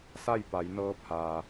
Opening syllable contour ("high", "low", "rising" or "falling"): falling